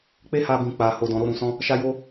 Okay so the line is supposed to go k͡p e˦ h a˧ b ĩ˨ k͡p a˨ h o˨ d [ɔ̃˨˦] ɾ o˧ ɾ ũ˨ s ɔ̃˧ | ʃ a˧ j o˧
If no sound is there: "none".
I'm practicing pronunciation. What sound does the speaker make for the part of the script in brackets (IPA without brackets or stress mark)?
ɔ̃˨